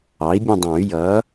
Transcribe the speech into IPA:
ɑ˩˥ i̯ bʲ ə̃˦˨ dˤ ɑ̃˨˩˦ y̯ j ʌ˩˥

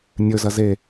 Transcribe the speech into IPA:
nʲ ɵ z ɐ z e

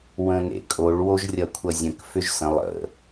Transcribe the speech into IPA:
w ə̃ n ḛ kʼ o ɭ w o ʒ rʲ ʌ kʷʰ ʌ zʲ ə̃ k f ʏ ʒ s ə̃ lˠ ə̰

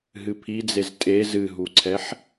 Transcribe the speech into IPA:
ɦ ɨ pʰ i d͡z e z tʼ e z ɨ ɦ u ǀʰ ɛ ħ

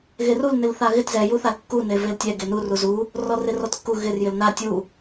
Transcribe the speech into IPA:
ɣ e r u l n ɪ l θ a ɣ ɪ t z ɛ j u θ a l kː u n e v e l tʲ ɛ ɡ e n u r u z u | r ɔ r ɪ r ɔ t kː u ɣ ɪ r j ɪ l n a tʲ u

